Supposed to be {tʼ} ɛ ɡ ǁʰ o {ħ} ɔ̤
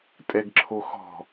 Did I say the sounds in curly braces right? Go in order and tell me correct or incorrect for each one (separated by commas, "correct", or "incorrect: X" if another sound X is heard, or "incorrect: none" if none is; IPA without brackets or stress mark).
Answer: correct, incorrect: x